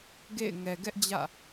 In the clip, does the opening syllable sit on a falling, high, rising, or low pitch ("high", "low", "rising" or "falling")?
falling